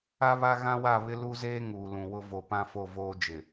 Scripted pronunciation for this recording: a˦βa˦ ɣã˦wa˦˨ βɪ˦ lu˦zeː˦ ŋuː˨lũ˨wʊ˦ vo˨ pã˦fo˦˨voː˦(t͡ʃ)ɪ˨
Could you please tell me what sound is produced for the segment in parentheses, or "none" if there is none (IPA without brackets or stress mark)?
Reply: d͡ʒ